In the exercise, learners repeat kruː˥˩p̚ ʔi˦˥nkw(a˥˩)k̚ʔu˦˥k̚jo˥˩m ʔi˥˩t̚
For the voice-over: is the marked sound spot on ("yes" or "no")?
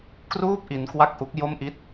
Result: yes